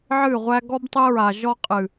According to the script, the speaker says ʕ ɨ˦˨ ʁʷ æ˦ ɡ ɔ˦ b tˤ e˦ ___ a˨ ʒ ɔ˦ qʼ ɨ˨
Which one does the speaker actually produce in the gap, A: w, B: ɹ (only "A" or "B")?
B